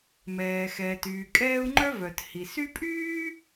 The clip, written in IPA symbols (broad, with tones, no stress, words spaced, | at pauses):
mɛː˩xɛː˩t yː˩kʼɛː˦u̯ŋ͡ǃœ˥ vœ˩thi˩ sy˥ pʼyː˥